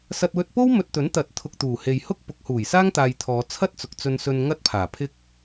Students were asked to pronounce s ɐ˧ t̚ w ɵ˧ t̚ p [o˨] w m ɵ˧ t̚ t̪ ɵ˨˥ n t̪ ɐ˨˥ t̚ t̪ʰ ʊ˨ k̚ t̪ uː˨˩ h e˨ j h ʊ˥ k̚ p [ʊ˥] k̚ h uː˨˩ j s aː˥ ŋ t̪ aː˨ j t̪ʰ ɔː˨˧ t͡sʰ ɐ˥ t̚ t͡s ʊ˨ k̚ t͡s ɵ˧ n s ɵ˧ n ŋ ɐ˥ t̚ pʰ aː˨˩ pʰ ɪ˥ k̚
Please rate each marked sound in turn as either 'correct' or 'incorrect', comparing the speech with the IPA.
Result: incorrect: o˥, incorrect: ʊ˨˥

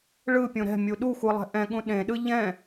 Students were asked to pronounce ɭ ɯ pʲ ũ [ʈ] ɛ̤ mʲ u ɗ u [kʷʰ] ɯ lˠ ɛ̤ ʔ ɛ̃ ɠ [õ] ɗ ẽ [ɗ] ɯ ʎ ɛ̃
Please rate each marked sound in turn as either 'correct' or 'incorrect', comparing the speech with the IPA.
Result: incorrect: ɾ, incorrect: xʷ, incorrect: ũ, correct

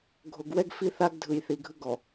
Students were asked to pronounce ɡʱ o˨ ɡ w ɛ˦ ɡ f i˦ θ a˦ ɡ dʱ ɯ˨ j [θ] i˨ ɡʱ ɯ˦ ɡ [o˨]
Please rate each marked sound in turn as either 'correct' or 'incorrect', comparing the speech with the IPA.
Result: correct, incorrect: ɔ˨

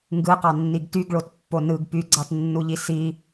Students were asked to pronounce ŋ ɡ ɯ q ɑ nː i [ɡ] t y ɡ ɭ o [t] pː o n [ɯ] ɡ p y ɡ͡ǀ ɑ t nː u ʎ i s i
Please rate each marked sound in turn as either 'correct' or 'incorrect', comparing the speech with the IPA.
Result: correct, correct, correct

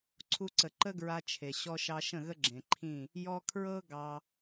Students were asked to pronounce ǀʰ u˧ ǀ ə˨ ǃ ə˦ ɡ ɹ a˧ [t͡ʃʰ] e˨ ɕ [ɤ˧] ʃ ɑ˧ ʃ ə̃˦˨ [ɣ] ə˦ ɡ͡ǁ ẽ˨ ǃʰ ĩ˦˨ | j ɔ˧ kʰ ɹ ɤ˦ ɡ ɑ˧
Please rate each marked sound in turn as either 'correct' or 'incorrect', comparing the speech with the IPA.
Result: correct, incorrect: ɔ˧, correct

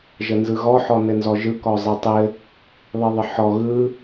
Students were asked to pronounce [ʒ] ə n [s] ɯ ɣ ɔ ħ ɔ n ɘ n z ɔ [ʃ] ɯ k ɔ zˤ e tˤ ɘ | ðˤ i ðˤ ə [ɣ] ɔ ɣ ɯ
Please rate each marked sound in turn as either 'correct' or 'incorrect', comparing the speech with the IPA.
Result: correct, incorrect: z, incorrect: ʒ, incorrect: ħ

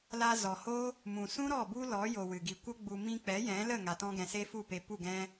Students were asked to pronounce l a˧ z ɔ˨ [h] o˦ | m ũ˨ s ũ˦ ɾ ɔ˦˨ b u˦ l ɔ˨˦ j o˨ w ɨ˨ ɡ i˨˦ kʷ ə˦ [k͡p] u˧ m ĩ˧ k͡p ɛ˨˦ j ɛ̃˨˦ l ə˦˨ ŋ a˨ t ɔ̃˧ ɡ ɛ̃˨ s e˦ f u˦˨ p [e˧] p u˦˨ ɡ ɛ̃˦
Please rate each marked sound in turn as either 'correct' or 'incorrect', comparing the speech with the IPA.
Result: correct, incorrect: ɡ͡b, correct

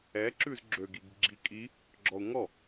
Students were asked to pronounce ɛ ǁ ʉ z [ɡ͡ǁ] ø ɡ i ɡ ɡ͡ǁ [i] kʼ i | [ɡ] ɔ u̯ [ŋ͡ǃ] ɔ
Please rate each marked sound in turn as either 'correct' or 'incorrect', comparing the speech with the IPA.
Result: correct, correct, incorrect: ɡ͡ǁ, incorrect: ŋ

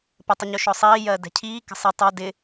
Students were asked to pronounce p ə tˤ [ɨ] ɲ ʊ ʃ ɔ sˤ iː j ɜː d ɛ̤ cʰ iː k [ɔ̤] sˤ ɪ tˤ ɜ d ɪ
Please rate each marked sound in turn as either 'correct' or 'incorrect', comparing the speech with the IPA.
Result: incorrect: ə, incorrect: ə̤

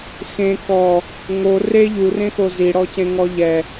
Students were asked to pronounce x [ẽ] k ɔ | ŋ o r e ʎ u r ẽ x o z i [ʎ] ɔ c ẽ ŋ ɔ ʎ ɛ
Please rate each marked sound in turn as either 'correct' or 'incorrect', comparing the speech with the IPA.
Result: correct, incorrect: ɽ

